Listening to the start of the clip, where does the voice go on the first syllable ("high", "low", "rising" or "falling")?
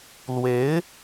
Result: rising